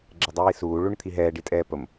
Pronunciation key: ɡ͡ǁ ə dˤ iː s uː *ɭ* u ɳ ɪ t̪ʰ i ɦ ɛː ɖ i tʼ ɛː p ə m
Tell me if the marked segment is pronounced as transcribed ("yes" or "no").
yes